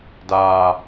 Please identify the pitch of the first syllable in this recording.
low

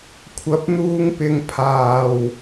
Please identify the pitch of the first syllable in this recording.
rising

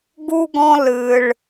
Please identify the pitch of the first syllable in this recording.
high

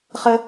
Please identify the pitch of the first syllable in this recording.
high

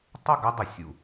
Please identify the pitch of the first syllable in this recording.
falling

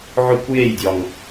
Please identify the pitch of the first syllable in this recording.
high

